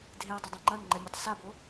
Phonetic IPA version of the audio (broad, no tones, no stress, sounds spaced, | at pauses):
dʱ e ʊ̯ dˤ ɘ dˤ ɛ̃ ŋ͡ǃ ɐ n ŋ͡ǃ ɛ mʲ e tˤ s a b o